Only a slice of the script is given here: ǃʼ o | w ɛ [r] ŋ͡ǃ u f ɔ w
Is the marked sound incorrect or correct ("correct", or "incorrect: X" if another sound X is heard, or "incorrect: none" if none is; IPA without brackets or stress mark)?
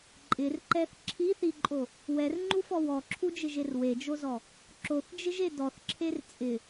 correct